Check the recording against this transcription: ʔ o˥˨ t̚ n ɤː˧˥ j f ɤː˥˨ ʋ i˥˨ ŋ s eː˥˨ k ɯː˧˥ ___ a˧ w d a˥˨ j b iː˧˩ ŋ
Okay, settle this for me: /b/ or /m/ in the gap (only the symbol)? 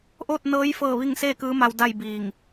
m